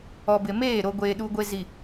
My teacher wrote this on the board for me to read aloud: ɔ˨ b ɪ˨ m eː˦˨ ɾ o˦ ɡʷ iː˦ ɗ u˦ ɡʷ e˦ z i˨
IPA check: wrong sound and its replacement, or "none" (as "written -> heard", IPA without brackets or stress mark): iː˦ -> eː˦